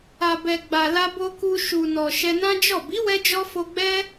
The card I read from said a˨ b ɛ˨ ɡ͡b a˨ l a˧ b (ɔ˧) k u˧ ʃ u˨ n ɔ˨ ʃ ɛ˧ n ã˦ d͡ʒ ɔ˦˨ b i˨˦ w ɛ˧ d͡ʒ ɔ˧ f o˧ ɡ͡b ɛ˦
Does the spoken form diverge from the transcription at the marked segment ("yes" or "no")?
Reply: yes